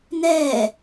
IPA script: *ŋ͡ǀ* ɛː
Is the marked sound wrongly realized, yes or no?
yes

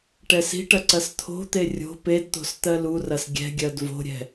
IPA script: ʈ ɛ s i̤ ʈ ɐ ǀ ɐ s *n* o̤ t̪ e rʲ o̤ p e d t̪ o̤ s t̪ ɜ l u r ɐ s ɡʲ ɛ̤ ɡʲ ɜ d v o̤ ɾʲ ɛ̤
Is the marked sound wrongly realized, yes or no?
yes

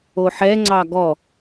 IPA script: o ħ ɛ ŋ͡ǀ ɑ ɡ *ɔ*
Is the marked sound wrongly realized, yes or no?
no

